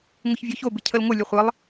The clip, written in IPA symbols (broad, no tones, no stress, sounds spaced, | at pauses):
ŋʷ ɪ ç vʲ ɔ ç o b ɪ cʰ ə l ŋʷ ə lʲ ə χʷ ə lˠ